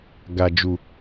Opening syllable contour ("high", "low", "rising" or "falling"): low